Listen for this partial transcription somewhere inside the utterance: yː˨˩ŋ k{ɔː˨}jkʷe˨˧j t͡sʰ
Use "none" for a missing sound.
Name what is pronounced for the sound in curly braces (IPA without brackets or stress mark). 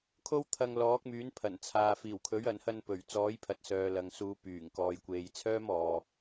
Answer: ɔː˨